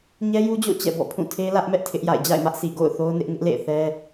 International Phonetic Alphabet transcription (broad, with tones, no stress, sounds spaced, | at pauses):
ɲ ɛ˦ j u˦ d͡ʑ o̰˦˨ t͡ɕ ɛ̰˦˨ b ɔ̰˦˨ pʰ ũ˦˨ tʰ e˦ l ä˦ ʔ m ɛ˦ ʔ tʰ ɪ˦ ʔ j a̰˦˨ ɪ̯ d͡ʑ a̰˦˨ ɪ̯ m ä˦ ʔ s i˨ ɡ o̰˦˨ ʊ̯ θ o˦ ʊ̯ n ɪ˦ ʔ ŋ ɪ˦ ʔ l ḛ˦˨ ɪ̯ θ ɛ˦